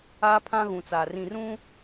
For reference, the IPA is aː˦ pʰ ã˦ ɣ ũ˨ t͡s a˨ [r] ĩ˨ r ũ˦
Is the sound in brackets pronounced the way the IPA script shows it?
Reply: yes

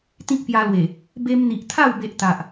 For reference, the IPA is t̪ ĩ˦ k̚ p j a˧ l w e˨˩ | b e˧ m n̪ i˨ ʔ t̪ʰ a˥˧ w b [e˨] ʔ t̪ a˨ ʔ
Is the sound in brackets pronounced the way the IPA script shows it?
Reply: no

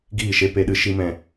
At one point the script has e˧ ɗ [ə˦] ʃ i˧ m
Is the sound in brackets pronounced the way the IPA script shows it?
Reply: no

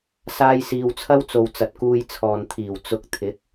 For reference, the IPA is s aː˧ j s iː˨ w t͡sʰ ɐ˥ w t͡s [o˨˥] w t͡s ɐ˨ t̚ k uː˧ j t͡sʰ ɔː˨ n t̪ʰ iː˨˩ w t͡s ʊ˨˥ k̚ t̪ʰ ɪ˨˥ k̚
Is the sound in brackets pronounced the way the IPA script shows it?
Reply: no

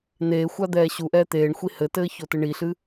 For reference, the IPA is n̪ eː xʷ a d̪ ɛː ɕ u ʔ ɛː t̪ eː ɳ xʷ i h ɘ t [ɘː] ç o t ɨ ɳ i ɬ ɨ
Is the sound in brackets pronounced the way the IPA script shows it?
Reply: yes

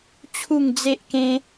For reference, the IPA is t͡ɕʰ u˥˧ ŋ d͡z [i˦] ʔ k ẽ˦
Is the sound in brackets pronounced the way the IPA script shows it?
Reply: no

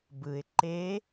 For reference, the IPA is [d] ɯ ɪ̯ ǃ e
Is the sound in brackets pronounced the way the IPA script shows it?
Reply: no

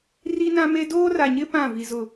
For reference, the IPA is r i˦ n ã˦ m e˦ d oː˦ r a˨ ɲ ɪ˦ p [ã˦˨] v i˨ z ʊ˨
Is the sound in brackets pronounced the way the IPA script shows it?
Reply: yes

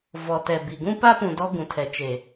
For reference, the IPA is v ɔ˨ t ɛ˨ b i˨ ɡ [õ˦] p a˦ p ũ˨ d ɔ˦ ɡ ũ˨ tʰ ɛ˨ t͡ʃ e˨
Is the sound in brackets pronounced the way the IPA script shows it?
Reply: no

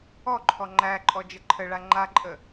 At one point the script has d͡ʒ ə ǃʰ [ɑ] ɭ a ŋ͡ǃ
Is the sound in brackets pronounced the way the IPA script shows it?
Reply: no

